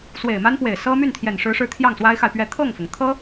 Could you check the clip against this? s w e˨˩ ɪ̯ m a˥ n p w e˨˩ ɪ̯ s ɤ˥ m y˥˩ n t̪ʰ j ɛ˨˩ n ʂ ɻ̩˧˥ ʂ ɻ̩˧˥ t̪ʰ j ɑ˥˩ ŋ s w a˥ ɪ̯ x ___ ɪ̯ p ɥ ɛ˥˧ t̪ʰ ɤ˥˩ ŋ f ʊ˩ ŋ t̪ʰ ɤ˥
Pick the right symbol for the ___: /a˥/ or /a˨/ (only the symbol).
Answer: a˨